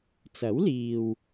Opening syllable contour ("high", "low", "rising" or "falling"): rising